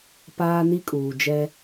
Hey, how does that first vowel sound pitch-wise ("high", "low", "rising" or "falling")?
high